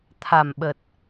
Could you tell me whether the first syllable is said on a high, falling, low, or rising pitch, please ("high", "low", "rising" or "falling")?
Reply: low